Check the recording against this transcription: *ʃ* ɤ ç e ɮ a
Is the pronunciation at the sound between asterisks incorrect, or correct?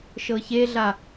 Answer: correct